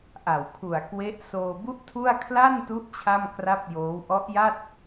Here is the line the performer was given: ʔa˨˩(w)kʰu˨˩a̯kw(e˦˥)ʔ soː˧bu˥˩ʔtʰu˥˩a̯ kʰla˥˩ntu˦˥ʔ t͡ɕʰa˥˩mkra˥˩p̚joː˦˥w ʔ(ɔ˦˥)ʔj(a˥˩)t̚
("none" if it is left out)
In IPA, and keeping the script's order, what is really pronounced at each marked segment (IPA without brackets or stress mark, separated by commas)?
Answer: w, e˦˥, ɔ˦˥, a˥˩